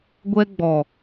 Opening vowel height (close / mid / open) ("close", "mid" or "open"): mid